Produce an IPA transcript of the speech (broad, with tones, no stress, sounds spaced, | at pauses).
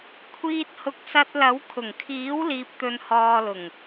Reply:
kʷʰ iː˧ t̚ h ʊ˨˥ k̚ s ɐ˧ t̚ l ɐ˨˥ w kʰ ʊ˨˩ ŋ kʰ iː˨˥ w l iː˨ p̚ t̪ ɵ˨ n h ɔː˨ l ʊ˨˩ ŋ